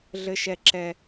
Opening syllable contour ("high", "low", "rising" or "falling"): high